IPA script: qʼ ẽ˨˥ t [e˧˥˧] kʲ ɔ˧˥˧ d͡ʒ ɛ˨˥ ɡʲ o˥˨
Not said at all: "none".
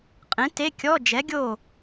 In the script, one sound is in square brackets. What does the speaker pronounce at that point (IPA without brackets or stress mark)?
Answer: e˧˥˧